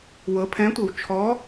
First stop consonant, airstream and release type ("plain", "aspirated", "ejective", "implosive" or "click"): aspirated